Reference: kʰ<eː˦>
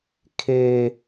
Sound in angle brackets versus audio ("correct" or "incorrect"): incorrect